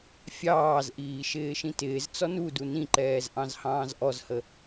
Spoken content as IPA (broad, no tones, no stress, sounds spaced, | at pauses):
fʲ ɑː z ʔ iː ʃ ɪː ʃ ĩ t ɪː z t͡s ɔ n u d u n ĩ ǃ ɛː z ʔ ɑ̃ z h ɑ̃ː z ʔ ɔ z h ə